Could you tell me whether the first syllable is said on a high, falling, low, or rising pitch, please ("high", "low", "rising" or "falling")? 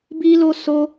high